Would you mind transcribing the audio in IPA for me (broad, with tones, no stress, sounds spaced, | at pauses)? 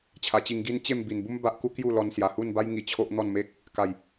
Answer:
t͡ɕʰ a˨˩ t͡ɕ i˧ ŋ ɡ i˦ n t͡ɕ e˥˧ m b i˨˩ n b u˦ m b a˦ ʔ k u˦ k j u˥˧ l ɔ˧ n s j a˨˩ h u˥˧ n b a˦ j ŋ i˧ t͡ɕʰ o˦ ʔ n̪ ɔ˥˧ n m e˦ k̚ | k a˨˩ j